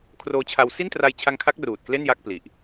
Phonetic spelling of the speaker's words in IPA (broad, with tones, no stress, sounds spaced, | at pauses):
kʰ r oː˧ t͡ɕʰ a˧ w s i˥˩ n t r a˧ j t͡ɕʰ a˧ ŋ kʰ a˦˥ k̚ r uː˨˩ t̚ k l e˥˩ n j a˥˩ k̚ p l i˨˩ ʔ